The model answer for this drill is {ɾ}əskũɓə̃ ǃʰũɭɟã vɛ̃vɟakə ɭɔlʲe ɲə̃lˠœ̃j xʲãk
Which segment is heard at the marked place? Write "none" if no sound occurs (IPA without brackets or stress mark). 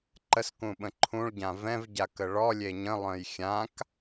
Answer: ǃ